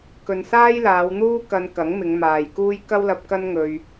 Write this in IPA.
k ɵ˨ n s aː˥ j l aː˨˧ w n̪ uː˥ k ɐ˧ n k ɐ˨˥ ŋ m ɪ˨˧ ŋ m aː˨ j k uː˥ j k ɐ˥ w l ɐ˧ p̚ k ɐ˥ n ŋ ɵ˧ ɥ

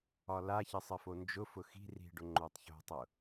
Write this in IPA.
ɒ l a ç ɘ sˤ ɘ f o n d͡ʒ ʊ f ʊ x i̤ r i̤ ɖ ʊ ŋ͡ǃ o tˤ ç o̤ tˤ ʊ

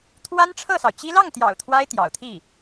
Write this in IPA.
t̪ʰ w a˥ n ʈ͡ʂʰ ɤ˥˩ s ɑ˩ ʊ̯ t͡ɕ i˥ l ɑ˥˩ ŋ t̪ j ɑ̰˨˩ ʊ̯ t̪ʰ w a˥ ɪ̯ t̪ j ɑ̰˨˩ ʊ̯ t̪ʰ i˥˩

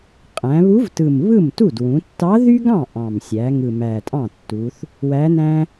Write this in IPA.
qʼ æ̃˩˧ β u˧˥ v t ɯ˨˩ m β ɯ˥˩ m t u˥˩ d w ũ˩˧ tː ɑ˧˥ ð y˥ ɡ ɑ̃˥˩ ʔ ɑ̃˨˩ m sʲ æ˩˧ ŋ ɯ˨˩ m æ˨˩ tʼ ɑ̃˥˩ tː u˩˧ θ | w æ˧˥ n æ̃˥

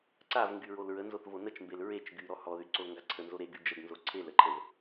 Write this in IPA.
ǀ a v ŋ ɡ y ɹ o l ɹ ə n z o θ v o n ə t͡ʃ m b e l ɹ e t͡ʃ ɡ y ɾ ɔ h ɔ ð y ǀ o l ŋ ɡ a ǀʰ ə n z o ɾ e ɡ y d͡ʒ ə ɡ n z o ǀʰ e l ə ǃʰ ə v

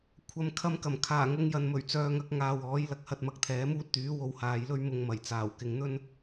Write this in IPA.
kʷʰ ɐ˨ m kʰ ɐ˧ m k ɐ˨˩ m kʰ aː˨˩ ŋ ʊ˨˧ ŋ j ɐ˨ n m ɵ˨˩ ɥ t͡s œː˨˧ ŋ ɐ˨˥ k̚ ŋ aː˨ w ɔː˨˥ j l ɐ˨ k̚ h ɐ˧ t̚ m ɐ˧ k̚ t̪ʰ ɛː˨˥ m uː˥ t̚ t̪ yː˨˥ w o˧ w h aː˨˧ j l ɵ˥ ɥ m ʊ˧ ŋ m ɐ˨˩ j t͡s aː˨˩ w k ɪ˨˧ ŋ n̪ ɵ˥ n

